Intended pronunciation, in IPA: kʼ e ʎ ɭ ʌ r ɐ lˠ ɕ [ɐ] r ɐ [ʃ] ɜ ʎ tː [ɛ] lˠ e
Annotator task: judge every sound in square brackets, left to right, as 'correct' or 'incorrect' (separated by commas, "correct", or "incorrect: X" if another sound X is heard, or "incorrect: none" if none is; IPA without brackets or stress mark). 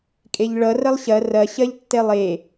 correct, incorrect: ɕ, correct